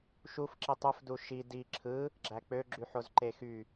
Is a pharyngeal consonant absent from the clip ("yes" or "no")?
no